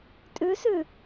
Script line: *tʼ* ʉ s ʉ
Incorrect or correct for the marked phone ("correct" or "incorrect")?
correct